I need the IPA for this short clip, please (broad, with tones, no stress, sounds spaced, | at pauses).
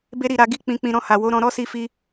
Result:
b e˦ ɾ i˦˨ ɾ a˧ ɡ i˦ k͡p ĩ˧ k͡p ĩ˧ ɾ ɔ̃˧ h a˨ w o˨˦ ɾ ɔ̃˧ ɾ ɔ˦ s i˧ f i˧